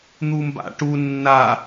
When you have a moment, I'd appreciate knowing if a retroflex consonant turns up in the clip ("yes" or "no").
yes